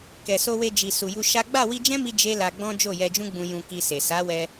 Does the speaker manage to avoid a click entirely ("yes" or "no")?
yes